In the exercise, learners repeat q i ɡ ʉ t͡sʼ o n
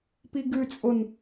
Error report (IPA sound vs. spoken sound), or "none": q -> p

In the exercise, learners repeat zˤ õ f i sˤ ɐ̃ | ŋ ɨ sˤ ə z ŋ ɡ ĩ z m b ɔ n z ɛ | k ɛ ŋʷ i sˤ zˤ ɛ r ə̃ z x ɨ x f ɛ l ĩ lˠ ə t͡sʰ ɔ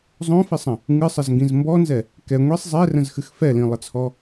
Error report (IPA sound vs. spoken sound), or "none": none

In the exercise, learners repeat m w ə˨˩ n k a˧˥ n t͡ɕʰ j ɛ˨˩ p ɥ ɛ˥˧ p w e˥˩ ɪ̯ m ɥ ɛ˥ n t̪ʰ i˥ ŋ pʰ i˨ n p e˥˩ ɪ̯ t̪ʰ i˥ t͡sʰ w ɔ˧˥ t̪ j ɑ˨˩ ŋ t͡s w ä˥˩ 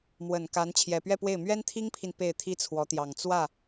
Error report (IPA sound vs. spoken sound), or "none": none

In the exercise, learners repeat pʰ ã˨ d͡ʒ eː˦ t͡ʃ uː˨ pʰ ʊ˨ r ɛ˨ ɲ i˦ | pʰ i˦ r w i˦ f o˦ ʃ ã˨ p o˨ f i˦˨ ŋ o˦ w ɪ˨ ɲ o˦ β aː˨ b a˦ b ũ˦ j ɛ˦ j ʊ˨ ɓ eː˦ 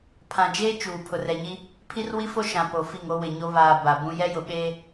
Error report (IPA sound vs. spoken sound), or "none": a˦ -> a˨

